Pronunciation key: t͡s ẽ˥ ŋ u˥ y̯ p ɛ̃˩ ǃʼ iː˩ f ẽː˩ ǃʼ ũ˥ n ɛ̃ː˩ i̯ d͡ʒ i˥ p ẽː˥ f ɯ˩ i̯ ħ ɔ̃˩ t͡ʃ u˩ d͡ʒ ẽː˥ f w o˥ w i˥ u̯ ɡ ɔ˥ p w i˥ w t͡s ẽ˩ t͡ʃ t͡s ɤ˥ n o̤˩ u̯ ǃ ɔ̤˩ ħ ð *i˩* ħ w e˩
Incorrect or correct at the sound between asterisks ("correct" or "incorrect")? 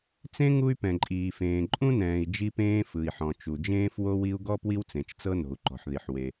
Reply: correct